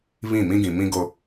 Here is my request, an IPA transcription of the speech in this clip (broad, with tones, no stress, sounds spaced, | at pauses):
β ĩ˦˨ m ĩ˦ ɡ ĩ˨ m ĩ˦ ɡ o˦